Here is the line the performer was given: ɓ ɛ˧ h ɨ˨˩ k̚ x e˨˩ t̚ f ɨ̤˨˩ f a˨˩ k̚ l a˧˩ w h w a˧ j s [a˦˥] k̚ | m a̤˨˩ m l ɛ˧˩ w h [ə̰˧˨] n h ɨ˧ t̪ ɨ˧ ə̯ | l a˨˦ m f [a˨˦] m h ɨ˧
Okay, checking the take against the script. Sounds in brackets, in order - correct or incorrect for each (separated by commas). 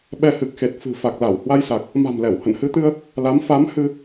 incorrect, correct, correct